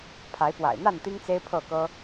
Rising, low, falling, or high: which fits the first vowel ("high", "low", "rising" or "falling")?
rising